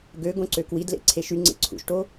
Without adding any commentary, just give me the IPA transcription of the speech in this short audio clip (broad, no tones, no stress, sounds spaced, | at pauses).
ɡ ø ɡ õ ǀ ø k w i d l ḛ ǀʰ e ʃ y ŋ͡ǀ ḛ ǀʰ ṵ ʃ ʈ o